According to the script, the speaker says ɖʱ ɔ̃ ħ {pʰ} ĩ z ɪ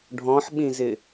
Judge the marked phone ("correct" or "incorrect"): incorrect